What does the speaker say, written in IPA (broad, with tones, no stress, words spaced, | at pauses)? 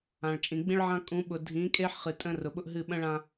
ã˨ɭt͡ʃʼĩ˨ ɡ͡bĩ˦ɭʕã˦kʼũ˨˦ɓʊ˨ dʱĩ˨˦kʼe˦ħ χɨ˨ tʼə̃˦rʊ˨ɓʊ˦ʔɦɨ˦˨ ɓə̃˦ɭã˨